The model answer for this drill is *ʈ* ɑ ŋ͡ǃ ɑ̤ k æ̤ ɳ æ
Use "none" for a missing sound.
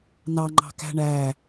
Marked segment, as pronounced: n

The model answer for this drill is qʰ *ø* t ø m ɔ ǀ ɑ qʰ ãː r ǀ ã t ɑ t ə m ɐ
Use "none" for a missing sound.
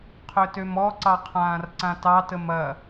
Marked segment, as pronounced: ø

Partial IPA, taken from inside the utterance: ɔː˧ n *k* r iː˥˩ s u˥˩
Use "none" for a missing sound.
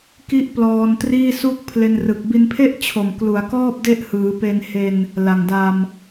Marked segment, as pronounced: t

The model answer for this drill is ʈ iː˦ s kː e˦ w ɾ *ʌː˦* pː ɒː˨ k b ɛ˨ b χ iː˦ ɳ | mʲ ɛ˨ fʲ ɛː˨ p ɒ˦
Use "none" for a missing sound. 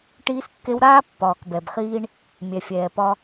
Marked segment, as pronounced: aː˦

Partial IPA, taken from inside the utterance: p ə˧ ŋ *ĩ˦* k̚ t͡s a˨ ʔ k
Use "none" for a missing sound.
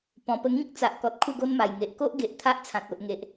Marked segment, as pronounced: ĩ˦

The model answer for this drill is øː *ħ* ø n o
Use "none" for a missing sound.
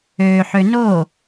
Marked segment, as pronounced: ħ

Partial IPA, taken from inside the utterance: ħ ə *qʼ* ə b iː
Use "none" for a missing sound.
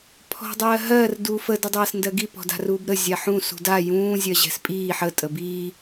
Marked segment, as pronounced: tʼ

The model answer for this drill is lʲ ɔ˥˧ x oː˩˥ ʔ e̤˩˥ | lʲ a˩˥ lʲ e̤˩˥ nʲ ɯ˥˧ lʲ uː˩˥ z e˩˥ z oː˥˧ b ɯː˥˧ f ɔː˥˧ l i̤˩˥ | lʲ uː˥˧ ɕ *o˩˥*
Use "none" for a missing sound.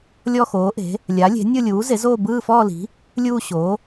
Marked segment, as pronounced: o˩˥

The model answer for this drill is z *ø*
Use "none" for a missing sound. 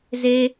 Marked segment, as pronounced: e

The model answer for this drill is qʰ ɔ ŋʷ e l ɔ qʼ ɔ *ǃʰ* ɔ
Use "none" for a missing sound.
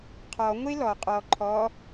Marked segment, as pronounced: ǃʰ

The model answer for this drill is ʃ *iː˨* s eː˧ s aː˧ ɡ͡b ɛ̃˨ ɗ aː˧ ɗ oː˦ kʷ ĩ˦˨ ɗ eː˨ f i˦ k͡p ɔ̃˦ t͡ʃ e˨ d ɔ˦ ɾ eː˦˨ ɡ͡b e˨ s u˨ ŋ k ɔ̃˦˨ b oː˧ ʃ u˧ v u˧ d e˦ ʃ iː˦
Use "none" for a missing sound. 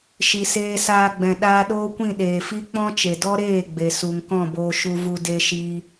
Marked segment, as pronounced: i˨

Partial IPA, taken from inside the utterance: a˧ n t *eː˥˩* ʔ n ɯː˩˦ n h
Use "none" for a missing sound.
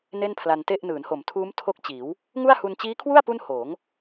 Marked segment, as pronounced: e˥˩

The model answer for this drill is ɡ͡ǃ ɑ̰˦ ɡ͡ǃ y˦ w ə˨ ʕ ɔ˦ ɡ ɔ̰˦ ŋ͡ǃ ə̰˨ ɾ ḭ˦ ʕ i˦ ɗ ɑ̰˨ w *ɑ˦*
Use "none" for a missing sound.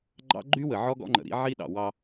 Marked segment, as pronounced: ɑ˦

